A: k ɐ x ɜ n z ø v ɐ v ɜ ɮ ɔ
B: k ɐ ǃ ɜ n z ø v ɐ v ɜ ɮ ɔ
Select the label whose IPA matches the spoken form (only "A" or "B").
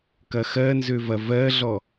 A